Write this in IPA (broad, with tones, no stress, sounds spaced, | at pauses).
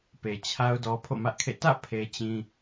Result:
p e˨ t͡ɕʰ a˦ ʊ̯ d ɔ˦ pʰ o̰˦˨ m ä˦ ʔ kʰ ḛ˦˨ t ä̰˦˨ pʰ e˦ t͡ɕ ĩ˦